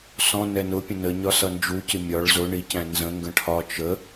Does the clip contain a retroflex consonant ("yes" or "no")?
yes